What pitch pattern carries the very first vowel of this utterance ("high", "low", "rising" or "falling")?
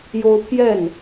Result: high